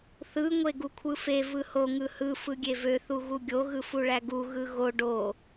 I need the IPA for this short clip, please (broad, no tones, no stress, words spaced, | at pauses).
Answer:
θɯ ŋʷeɡukʷʰɯfe vɯho ŋɯhɯ fɯɡʲevø θuɣuɡʲo ɣɯfuɭæɡu ɣɯɣo ɖo